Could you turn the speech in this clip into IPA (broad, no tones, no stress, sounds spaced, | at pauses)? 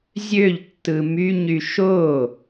zʲ ø ʎ tː ɯ m y ɲ y ʃ o